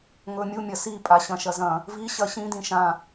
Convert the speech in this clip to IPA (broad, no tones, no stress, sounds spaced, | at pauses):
ŋ ɵ mʲ u mʲ ɐ s i pʼ a ɕ ɐ̃ ʃ ɐ z ɐ̃ | v i ɕ ɐ ɕ ĩ d ĩ ʃ ã